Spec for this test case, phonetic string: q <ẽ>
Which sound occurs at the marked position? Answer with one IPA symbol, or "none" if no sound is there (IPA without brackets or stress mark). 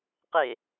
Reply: e